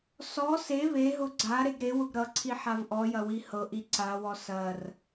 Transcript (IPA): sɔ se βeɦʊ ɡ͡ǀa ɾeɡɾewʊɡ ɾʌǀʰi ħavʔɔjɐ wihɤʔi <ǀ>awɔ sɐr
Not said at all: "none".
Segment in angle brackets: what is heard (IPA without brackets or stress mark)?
ǀ